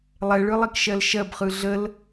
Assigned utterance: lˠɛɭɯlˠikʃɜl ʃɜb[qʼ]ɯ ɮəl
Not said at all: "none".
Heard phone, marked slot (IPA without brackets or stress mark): χ